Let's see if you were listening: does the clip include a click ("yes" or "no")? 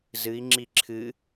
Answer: yes